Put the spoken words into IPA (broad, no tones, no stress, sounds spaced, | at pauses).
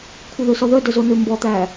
kʷʰ œ ð ø s ɔ ð œ d œ z o n ø m b ɔ t̪ æ